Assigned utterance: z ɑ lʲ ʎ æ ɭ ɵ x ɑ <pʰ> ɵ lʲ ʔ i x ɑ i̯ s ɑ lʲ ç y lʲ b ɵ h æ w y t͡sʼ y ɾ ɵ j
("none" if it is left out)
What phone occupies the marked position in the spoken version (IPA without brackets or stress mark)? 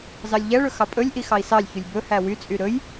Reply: pʼ